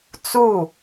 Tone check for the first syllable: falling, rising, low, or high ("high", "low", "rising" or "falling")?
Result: falling